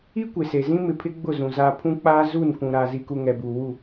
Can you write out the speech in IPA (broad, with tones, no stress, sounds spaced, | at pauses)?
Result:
i˦ kʷ e˨ s e˨ z ĩ˦ m ɪ˨ pʰ ɪ˦ ɡ͡b ʊ˦˨ z ũ˨ z aː˦ pʰ ũ˦ k͡p aː˦ z u˦˨ n kʷ ũ˨ ɾ aː˨ z i˨ k u˨ ŋ ɛ˨ b uː˨ w u˦˨